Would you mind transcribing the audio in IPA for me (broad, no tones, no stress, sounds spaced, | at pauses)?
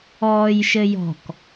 ɔː j ʃ ɘ j ɔ̤ k